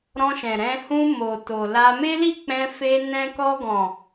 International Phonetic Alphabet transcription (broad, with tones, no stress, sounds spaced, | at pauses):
ɾ ɔ̃˧ ʃ ɛ̃˨ ɾ ɛ̃˧ h ũ˧ m o˨ t o˨ l a˧ m e˦ l i˦˨ k͡p ɛ̃˧ f e˧ n ɛ̃˧ k ɔ˧ ɡ ɔ̃˨